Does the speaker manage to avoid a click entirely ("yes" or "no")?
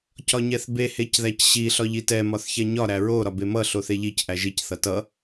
yes